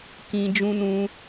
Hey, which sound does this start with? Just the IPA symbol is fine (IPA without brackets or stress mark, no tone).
k